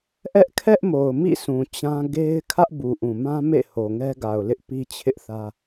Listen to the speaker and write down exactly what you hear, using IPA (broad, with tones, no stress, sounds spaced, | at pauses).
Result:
ʔ ɛ˦ ʔ kʰ ɛ˦ ʔ m o˨ ʊ̯ m ḭ˦˨ s ũ˨ t͡ɕ ã˦ ɡ e˦ ɪ̯ kʰ ä˦ ʔ b u˨ ʔ ũ˨ m ã˦ m ḛ˦˨ h o˨ ŋ ɛ˦ ɡ a˨ ʊ̯ l ɪ˦ ʔ p i˦ t͡ɕʰ ɪ˦ ʔ θ ä˦